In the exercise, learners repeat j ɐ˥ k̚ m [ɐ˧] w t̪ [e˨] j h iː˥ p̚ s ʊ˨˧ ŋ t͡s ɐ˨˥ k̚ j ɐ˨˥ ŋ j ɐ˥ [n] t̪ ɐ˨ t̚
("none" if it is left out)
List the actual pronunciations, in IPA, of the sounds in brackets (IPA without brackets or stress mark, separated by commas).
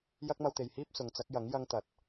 ɐ˧, e˨, ŋ